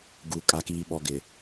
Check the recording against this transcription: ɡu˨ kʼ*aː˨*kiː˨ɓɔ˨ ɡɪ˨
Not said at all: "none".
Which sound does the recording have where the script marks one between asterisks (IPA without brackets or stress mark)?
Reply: a˨